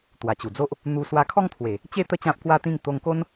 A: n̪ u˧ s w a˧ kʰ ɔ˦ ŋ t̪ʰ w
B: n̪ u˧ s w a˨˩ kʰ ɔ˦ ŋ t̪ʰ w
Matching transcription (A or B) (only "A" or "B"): A